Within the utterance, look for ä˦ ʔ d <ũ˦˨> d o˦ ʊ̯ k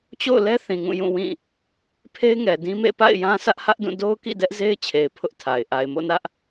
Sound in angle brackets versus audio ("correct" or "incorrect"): correct